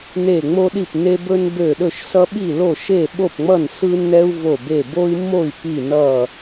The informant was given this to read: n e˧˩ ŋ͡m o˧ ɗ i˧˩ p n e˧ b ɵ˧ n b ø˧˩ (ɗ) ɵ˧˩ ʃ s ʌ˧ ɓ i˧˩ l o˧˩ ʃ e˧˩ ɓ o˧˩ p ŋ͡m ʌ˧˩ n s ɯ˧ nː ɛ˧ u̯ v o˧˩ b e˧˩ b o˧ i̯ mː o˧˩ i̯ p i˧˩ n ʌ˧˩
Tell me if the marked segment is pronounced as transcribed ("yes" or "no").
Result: yes